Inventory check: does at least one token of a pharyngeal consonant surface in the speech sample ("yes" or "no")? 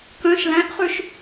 no